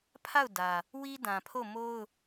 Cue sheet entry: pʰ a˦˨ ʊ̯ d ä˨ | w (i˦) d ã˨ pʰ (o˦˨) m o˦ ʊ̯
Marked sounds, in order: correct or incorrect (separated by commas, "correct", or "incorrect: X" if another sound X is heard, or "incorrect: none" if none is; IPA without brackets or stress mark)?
correct, correct